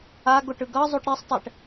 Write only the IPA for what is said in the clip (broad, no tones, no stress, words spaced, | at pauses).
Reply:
aɡoʈ ɯɡʌzˤuʈ ɾisˤtˤɛʈ